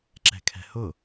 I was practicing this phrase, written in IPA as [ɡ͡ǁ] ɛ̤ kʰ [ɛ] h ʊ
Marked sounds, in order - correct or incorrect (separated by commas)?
incorrect, incorrect